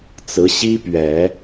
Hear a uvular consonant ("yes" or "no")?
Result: no